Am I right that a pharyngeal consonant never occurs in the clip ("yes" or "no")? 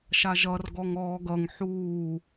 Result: no